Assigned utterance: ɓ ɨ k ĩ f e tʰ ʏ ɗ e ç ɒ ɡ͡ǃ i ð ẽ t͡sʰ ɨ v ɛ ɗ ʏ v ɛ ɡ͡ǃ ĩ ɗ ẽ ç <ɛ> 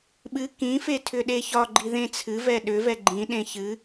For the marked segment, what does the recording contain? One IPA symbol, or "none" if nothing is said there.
ɨ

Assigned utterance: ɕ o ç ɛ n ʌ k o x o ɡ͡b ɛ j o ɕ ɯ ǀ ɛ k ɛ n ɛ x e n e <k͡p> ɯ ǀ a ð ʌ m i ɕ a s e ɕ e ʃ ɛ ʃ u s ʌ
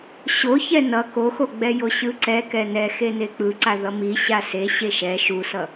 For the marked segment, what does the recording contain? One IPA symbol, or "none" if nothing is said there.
k͡p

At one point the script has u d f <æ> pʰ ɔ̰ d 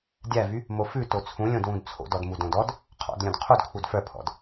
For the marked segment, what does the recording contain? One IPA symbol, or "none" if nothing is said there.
œ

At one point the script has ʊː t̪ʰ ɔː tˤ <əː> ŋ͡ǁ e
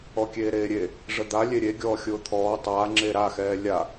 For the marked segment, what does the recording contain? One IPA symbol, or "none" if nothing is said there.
aː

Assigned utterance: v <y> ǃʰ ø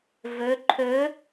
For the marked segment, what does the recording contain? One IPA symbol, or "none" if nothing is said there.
ø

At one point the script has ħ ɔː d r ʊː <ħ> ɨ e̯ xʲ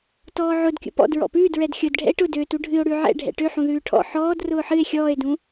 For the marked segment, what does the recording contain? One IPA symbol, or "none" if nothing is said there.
ħ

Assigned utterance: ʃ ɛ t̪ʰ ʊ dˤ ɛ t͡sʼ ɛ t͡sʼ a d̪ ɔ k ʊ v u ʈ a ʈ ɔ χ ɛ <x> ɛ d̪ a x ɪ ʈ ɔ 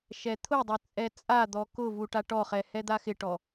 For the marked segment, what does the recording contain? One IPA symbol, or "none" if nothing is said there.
h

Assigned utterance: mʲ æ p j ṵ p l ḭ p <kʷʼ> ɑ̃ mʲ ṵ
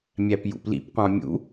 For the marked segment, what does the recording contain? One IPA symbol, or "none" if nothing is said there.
qʷ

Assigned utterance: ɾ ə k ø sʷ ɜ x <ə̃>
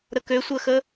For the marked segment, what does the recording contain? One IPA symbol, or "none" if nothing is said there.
ə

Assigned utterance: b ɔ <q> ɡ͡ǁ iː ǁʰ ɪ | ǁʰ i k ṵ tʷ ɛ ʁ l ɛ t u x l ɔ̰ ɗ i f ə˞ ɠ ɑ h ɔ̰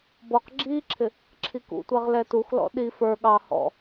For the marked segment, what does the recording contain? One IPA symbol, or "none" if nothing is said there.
q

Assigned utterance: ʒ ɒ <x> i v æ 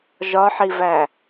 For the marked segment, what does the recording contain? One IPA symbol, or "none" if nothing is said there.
ħ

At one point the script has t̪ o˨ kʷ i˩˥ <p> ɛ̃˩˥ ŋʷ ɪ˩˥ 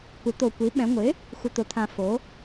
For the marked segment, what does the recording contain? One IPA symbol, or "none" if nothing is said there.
ɓ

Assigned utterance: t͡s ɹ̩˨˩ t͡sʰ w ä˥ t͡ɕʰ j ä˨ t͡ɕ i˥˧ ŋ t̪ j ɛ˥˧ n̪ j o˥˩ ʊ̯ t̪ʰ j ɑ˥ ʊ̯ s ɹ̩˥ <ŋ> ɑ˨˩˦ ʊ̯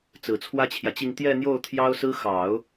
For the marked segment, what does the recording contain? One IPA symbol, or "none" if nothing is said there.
x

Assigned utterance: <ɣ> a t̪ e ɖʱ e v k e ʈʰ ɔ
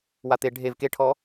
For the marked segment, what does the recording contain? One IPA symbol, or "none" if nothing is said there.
w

